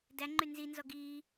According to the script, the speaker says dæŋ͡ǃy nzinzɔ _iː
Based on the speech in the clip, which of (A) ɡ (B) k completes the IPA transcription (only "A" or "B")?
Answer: A